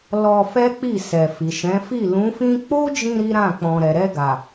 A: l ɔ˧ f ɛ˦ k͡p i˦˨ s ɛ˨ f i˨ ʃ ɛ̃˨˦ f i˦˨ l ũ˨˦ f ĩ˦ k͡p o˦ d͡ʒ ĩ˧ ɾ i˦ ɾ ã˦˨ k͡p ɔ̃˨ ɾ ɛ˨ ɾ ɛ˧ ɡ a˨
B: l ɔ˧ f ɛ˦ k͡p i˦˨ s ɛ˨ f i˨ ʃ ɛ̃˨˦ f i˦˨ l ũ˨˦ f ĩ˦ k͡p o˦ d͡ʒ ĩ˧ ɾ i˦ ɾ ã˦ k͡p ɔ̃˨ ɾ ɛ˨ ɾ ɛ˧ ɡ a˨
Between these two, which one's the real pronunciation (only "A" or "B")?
A